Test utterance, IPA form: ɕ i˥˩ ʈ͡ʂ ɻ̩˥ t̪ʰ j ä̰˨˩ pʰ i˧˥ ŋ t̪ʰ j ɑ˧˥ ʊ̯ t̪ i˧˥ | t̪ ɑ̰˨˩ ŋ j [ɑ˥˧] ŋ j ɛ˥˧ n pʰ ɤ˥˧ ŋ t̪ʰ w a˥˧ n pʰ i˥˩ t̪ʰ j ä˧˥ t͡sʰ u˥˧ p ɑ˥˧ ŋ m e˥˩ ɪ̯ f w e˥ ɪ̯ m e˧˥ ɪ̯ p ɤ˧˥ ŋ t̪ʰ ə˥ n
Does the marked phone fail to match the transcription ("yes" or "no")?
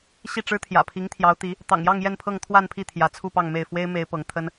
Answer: no